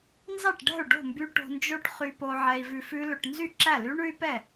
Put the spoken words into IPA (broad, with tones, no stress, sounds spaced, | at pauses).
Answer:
n z ɑ˥˩ ʈ ɖ ɛ̤˥˩ u̯ ɖ o̤˥˩ m b y˧ ʈ o̤˧ n d͡ʒ o˦˥ ʈ χ y˧ p o˧ ʕ ɛ˧ i̯ v ʉ˧ f ʉ˦˥ l ɵ˧ ʈ n z y˥˩ ǁ æ˥˩ l y˦˥ ɳ ʉ˦˥ y̯ p ɛ˥˩